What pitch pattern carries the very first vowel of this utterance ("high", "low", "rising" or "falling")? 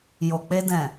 low